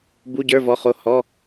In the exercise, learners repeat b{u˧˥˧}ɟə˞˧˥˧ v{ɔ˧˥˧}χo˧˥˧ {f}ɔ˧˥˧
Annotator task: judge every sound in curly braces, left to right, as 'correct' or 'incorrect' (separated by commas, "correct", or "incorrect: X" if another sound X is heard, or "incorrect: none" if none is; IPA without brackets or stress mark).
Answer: correct, correct, incorrect: h